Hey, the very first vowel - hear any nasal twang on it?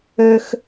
no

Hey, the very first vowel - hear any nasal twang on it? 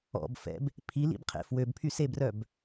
no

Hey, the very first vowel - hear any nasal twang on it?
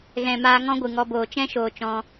yes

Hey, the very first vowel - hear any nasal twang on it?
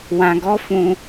yes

